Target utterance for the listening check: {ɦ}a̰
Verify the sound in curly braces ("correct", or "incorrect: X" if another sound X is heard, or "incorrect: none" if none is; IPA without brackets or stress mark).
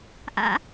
incorrect: ʔ